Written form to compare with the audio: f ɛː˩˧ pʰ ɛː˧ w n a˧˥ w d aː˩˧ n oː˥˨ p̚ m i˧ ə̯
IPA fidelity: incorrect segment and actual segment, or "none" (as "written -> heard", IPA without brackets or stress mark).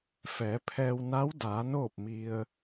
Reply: none